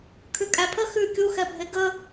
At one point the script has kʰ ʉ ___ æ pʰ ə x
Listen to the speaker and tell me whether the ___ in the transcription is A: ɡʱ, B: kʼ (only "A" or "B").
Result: B